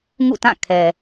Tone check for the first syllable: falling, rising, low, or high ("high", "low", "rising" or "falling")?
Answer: falling